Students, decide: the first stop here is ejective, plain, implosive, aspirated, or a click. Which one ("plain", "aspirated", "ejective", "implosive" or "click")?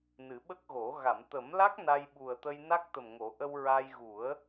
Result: implosive